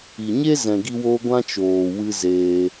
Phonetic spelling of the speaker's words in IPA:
i˨ɲe˦zɛ̃˨ ɡi˧wo˧ ɡʷã˦t͡ʃoː˨ wɨ˦zeː˧

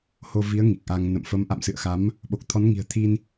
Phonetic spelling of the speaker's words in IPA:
ho˧ vi˨˦ə̯ ŋi˨˩k̚ʔa˧ŋ nə̰˧˨m fə˨˦mʔa̰˧˨msɨ̰˧˨ə̯xa˨˦m | ɓo˨˩k̚t̪ʰɔ˨˦n ŋi̤˨˩ə̯t̪ʰi˧n

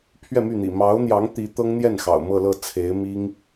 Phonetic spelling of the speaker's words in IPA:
pʰɥɛ˥˧my˥˩n̪ḭ˨˩ mɑ˧˥ʊ̯n̪jɑ˧˥ŋ t̪i˧˥t̪ɤ˥ŋn̪jɛ˥˩n xɑ̰˨˩ʊ̯mɤ˥˧lɤ˥˩ t͡sʰe˧˥ɪ̯mi˥ŋ

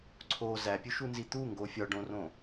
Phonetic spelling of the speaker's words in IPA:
ǀʰo zæpʲuʃunzi t̪uŋɡo fʲɒɖõrõ

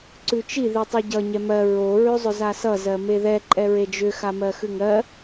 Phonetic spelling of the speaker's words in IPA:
ǀʉt͡ʃi ðitˤʉɟʌ ɲɛmɜ ɹo ɹʉzˤʏzasʌ zɜmeðɛ ǃʼɛɹed͡ʒʏ xamɜxʉŋɜ

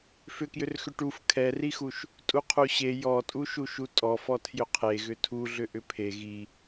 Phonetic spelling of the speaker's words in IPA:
fʏkjʏrxʏ ʈuf kʰɛrixuʃ | tʼuqʰuɕe jɔtʼuʃuʃu tʼɔfɔ tʰjʏqʰe ɣʏtʰuɮʏ ʔʏpʰe ɣi

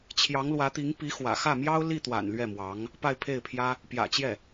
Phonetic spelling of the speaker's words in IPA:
t͡ɕʰjɑ˧˥ŋlwä˧˥t̪i˧˥ŋ pi˧˥ xwä̰˨˩xä˥˩mjɑ˥ʊ̯ li˥˩t̪wa̰˨˩n lɥɛ˥˩mwɑ˧˥ŋ | pa˥˧ɪ̯pʰe˥˩ɪ̯pʰjä˥ | pjä̰˨˩t͡ɕjɛ˥˩

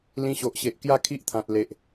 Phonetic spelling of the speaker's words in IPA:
lĩ˧ɕo˨ʔɕe˨ʔ kja˥˧kʰi˦ʔt̪ʰã˨t̚ le˨ʔ

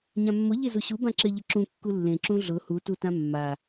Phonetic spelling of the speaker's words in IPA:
ɲãmːʊ ʎezuɕu bãǁɪ ʎɪǁũ kːulːẽ ǁũɮʊ hu tutãmːa

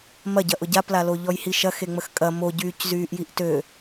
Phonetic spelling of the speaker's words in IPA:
mɐɟɐʔʊ ɟaplalo ʎɔjhiʃɐ xeŋ͡məxkʼɐ moɟyːc zyːʔjiʔtø

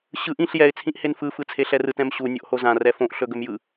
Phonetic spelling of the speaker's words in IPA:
ɕɯʔ ĩɬ jɛɪ̯ t͡sʰĩʔhenfɯ fɯt͡sʰeɬɛrɯt ɛ̃mɕu nʲoʔhozã rɛfõʔ ɬɵɡɵmjɯ

